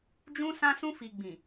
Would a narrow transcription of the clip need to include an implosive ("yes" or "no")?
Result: no